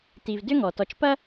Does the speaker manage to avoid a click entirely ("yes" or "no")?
yes